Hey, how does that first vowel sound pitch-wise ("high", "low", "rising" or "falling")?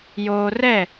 high